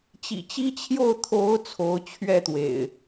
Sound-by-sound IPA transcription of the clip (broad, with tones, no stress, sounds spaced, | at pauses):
t͡ɕ ḭ˨˩ t͡ɕ i˦ t͡ɕʰ j o˥˨ ʊ̯ t̪ʰ o˨˦ ʊ̯ t͡sʰ o˨˦ ʊ̯ t͡ɕʰ ɥ ɛ˥˨ t̪ w ḛ˨˩ ɪ̯